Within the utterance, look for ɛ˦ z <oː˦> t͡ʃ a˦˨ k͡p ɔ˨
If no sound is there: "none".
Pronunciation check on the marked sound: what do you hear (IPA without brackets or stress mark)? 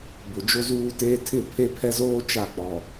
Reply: oː˦